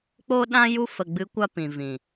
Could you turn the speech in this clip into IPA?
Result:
k͡p o˧ ɗ ã˧ j u˧ f ə˨ ɡ͡b ɨ˨˦ kʷ a˧ p ĩ˨ v ĩ˨

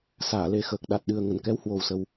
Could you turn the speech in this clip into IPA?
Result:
s aː˧˩ l e˧ x əː˨˩ k̚ ɗ a˨˩ t̚ ɗ ɨ˨˩ ə̯ ŋ ə˧˩ n k ɛ˨˦ w h w o˨˩ w s ə˨˩ w

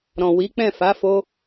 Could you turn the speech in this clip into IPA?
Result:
ɾ ɔ̃˨ w i˨˦ k͡p ɛ̃˦˨ f a˨˦ f o˧

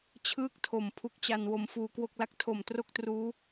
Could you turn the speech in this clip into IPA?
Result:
t͡ɕʰ ɯː˥˩ k̚ tʰ o˨˩ m pʰ u˦˥ k̚ t͡ɕ a˧ n w o˧ m f uː˧ k w o˥˩ k̚ l a˥˩ k̚ tʰ o˨˩ m t r o˥˩ k̚ t r uː˦˥

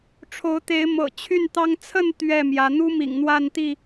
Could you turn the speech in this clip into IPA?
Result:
ʈ͡ʂʰ o˨˦ ʊ̯ t̪ e˨˦ ɪ̯ m ɤ̰˨˩ t͡ɕʰ y˥˨ n t̪ ɑ˦ ŋ t͡sʰ ə˥˨ n t̪ ɥ ɛ˥˨ m j ä˨˦ n̪ u˦ m ḭ˨˩ ŋ n̪ w a˥˨ n t̪ i˥˨

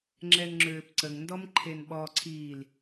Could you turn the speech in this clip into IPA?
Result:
ŋ͡ǁ ɛ n ŋ͡ǁ øː p ǀ ə ŋ n d ɔ m ǃʰ e n ɓ ɔ ǀʰ iː l

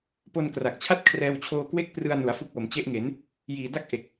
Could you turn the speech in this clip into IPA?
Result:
p o˧ n k r a˨˩ k̚ t͡ɕʰ a˥˩ t̚ kʰ r ɛː˧ w t͡ɕʰ oː˧ k w e˥˩ k̚ p r ɯ˧ a̯ n u˩˦ a̯ f u˦˥ k̚ w o˩˦ m t͡ɕ e˦˥ ʔ ŋ e˩˦ n | j iː˨˩ d a˥˩ k̚ ʔ e˨˩ k̚

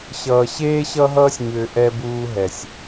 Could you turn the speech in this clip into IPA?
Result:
ɕ ʌː˨ ɕ eː˦ ɕ ʌ˦ ɦ ʌː˦ sʲ ɲ ʏː˨ ʔ ɛ˦ b uː˦ ɦ ɛ˨ sʲ

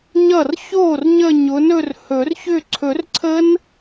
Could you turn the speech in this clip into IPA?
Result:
ɲ ʌ˥˩ r ç oː˥˩ r ɲ ə˥˧ ɲ ʊ˨˦ n ɵ˥˧ r h ɵ˨˩˦ r ç ʏ˥˧ ǀʰ ɵ˨˩˦ r ǀʰ ə˦˥ n

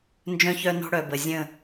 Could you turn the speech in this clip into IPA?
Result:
n d͡ʒ œ̃˦ ç œ˦ n ɔ̤˦ ɽ œ˨ b ə˨ zʲ ə̃˦˨

